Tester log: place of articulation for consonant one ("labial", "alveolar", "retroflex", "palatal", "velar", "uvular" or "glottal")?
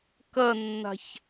velar